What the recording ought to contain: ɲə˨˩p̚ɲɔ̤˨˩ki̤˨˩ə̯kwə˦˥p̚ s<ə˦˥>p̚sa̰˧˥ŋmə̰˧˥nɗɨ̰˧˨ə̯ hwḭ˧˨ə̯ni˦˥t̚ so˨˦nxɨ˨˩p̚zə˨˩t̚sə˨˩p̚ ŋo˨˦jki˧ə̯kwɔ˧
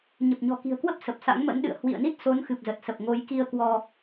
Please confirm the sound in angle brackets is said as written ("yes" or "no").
no